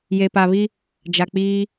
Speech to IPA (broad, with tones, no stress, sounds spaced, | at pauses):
j e˨ p a˨ β i˦ | d͡ʒ a˨ k͡p iː˦